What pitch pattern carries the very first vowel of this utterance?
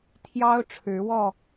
high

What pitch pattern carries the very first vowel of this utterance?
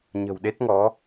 low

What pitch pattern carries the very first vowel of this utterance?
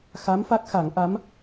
rising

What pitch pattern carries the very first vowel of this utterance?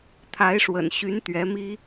rising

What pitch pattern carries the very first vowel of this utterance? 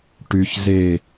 low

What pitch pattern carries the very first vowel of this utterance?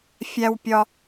high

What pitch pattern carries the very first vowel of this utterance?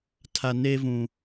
low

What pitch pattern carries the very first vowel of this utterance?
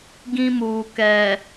high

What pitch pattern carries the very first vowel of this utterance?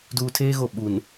low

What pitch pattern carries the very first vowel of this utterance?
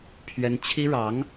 high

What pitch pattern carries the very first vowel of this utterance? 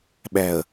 low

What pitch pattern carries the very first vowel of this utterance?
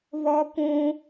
high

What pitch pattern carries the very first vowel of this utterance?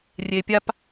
low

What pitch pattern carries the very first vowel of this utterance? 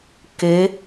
rising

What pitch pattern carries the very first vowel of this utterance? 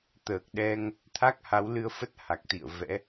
low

